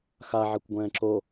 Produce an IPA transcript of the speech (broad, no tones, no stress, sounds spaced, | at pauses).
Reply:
x a ʕ ɛ kʷ ɡʷ ɛ̃ː ǁ o